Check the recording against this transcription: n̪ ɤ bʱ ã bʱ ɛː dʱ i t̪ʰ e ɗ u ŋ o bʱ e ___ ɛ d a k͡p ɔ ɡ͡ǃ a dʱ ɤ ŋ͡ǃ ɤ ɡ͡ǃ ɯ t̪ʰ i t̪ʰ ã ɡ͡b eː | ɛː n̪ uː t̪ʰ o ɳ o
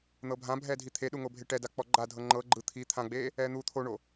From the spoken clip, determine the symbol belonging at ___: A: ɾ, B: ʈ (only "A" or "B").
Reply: B